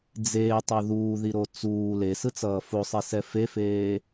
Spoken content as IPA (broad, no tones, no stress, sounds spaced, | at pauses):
d͡z eː tˤ u ð uː ð i ɾ o t͡s uː l e s ɯ t͡s ʌː f o sˤ i s ɛ f e f eː